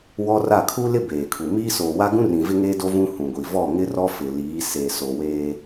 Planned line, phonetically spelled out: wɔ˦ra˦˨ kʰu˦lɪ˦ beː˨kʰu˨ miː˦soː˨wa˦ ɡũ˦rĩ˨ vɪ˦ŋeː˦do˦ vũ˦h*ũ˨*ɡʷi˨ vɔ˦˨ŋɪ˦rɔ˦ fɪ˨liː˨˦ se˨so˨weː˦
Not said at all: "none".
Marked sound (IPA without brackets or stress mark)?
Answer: ũ˨